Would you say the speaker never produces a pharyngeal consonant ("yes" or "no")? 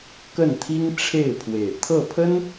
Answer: yes